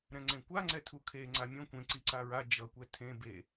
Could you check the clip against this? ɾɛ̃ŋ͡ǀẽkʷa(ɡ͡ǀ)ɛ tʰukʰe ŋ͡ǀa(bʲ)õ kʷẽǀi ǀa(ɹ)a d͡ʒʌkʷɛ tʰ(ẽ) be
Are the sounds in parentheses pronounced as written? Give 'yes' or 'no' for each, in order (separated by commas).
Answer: no, no, yes, yes